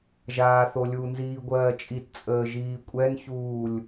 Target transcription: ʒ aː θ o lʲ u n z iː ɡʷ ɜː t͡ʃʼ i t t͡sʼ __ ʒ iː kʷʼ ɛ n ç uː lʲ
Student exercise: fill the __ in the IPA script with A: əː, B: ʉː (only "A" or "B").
A